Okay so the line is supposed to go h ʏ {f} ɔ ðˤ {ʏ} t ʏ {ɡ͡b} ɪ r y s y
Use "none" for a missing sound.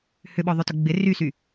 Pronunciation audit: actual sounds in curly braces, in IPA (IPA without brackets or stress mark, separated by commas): ɓ, ʏ, ɡ͡b